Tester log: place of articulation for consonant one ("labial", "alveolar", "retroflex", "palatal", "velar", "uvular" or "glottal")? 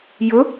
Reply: palatal